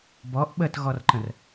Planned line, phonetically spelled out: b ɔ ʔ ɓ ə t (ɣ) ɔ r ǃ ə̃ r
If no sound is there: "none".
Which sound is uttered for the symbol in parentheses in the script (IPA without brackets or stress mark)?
ɣ